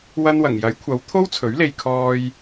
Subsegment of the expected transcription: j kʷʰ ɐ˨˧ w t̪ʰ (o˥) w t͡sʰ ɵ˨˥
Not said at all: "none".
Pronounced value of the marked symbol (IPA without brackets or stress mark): o˥